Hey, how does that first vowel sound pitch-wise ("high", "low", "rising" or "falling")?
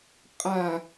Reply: low